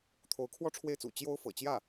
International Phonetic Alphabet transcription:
t̪ʰ o˧˥ ʊ̯ kʰ w ɔ˥ ʈ͡ʂʰ w e˥˩ ɪ̯ t͡s ṵ˨˩ t͡ɕ j o˥ ʊ̯ f ɤ̰˨˩ t͡ɕ j ä˥˩

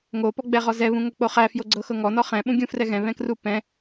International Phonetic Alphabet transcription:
ŋ o p ɔ ɡ͡b ɛ ʁ ɔ z ɛ β ũ ŋ o k͡p o χ æ f j o ɡ͡ǀ ɤ x ɤ ŋ ɔ n ɔ χ ɛ̃ ɓ ũ ɡʲ ũ f r ɛ ɣ ɛ̃ β ɛ̃ k r u p ɛ̃

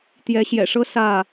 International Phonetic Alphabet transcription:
t̪ j ɛ˨˦ ɕ j ɛ̰˨˩ ʂ ɤ˦ s ä˥˨

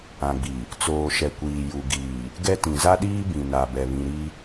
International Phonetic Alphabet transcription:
ã˨ ɡ͡b i˨ | t͡s oː˨ ʃ ɛ˨ kʷ iː˨ j u˨ ɡ iː˨ | ɡ ɛ˦ t ĩ˨ z a˦ ɗ iː˦ b ĩ˨ n a˨ b ɛ˨ β ĩ˨ ɾ i˦

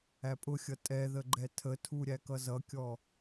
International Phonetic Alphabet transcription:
æ pʼ ʊ xʲ ʌ tʼ ɛ ð ə ɡ͡ǃ ɛ tʰ ə tʰ u ɾʲ æ k ʌ z ʌ kʲ ɔ

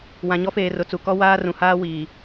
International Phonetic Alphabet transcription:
w ã˨ ɲ ɔ˦ f eː˨ r ʊ˨ t͡s u˨ k ɔ˦ w aː˦ r ũ˨ h aː˦ w iː˨

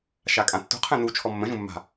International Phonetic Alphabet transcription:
ʃ a kʼ ã tː ṳ qʰ ɛ̃ n u t͡ʃʰ ɔ mː ə̃ ʒ ũ mː a̤

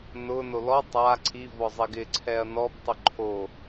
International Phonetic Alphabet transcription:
n ʊ n o l ɔ tˤ a ǀʰ i v ɔ zˤ e ɡ ɪ ǀʰ ɛ ɐ̯ n ɔ b tˤ ʊ ǃʰ o

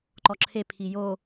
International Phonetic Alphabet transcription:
ǃ ɔ ǁʰ e pʰ i j o

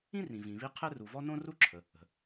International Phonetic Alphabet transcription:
ĩ˥ r ĩ˩ v ĩ˩ β i˥ qʰ ɛ˥ r u˩ v ɔ˥ n õ˥ r u˥ ǁʰ ə˩ | ə̤˩

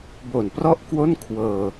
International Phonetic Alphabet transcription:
b o˨˩ n p r ɔ˥˩ ʔ k w o˥˩ n kʰ w ɤː˧

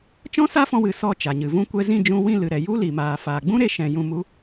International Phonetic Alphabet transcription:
t͡ʃ ɔ̃˦ s a˦ f ɔ̃˧ w ɨ˧ s ɔ˦˨ t͡ʃ a˨ ɲ ɨ˨ v ũ˧ kʷ ɛ˧ z ĩ˦˨ d͡ʒ ũ˧ w ĩ˦˨ l ɨ˨ ɾ ɛ˨ j u˦ l i˨ m aː˨ f aː˨ ɡ͡b ũ˦ ɾ e˧ ʃ ɛ̃˨ j ũ˧ m u˦

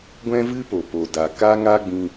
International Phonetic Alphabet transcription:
ɡʷ ɛ̃˦ v ɨ˦ p o˨ p o˨ d a˨ k a˦ ŋ a˦ ɡ͡b ĩ˧

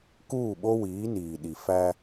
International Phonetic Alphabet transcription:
k uː˦˨ ɓ o˦ w iː˨˦ n iː˨ ɗ i˨ f æ˦

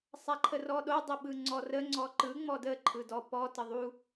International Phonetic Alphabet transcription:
sˤ a ǃʰ ə r ɔ ɗ o dˤ ə ɓ ɯ ŋ͡ǀ ɔ r ə ŋ͡ǀ ɔ ǃ ɯ ŋ͡m ɔ d ə ǃʰ ɯ d ɔ p ɔ t ə ðˤ u

